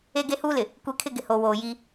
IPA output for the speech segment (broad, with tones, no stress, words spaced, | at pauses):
e˦ɡe˦huː˦lɪ˨ | kʷe˦kʰɪ˦ɡɪ˨ ho˨woː˨ ji˦